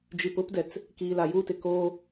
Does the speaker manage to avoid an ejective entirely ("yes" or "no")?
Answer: yes